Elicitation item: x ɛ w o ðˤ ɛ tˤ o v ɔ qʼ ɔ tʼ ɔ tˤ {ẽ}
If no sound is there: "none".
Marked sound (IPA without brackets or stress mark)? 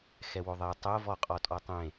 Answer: ẽ